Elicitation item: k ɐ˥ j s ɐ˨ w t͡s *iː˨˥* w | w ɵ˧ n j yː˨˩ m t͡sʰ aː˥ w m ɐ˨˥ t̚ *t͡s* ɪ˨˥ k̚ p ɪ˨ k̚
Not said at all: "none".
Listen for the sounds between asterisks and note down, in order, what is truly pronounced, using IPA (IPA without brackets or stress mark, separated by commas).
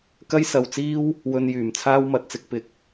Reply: iː˥, t͡s